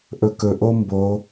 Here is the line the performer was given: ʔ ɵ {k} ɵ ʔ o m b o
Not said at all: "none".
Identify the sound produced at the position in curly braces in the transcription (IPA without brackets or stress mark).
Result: k